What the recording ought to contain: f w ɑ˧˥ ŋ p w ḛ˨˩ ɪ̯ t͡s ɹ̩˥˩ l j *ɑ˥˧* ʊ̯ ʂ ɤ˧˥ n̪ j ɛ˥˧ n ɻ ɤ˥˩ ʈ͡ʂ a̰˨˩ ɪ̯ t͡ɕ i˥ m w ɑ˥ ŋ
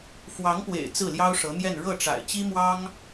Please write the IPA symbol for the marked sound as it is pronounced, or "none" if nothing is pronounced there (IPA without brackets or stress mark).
ɑ˥